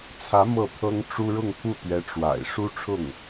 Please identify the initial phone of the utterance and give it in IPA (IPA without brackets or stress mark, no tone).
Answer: t͡sʰ